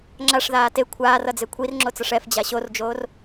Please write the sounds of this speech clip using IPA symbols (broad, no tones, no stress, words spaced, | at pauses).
ŋ͡ǁaʂðaː te kʷʰaːr ʌd͡zekʷʰir ŋ͡ǁot͡sʌʂɛf d͡ʑaɕord͡ʒoːr